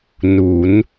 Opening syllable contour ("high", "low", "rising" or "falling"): rising